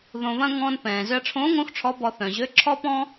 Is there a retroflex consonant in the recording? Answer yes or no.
yes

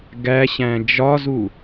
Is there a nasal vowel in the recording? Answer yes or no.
yes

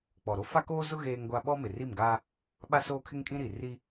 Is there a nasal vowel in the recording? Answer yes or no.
yes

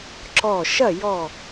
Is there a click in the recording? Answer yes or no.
yes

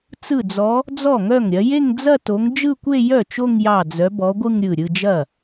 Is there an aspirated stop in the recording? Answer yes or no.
no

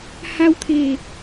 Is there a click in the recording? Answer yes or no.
no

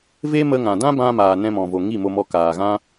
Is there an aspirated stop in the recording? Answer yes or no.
no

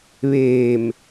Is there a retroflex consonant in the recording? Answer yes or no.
no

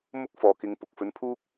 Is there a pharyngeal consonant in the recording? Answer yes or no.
no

